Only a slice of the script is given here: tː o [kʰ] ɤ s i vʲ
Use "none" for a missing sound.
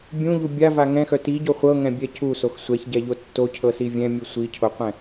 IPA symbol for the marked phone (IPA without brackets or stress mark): cʰ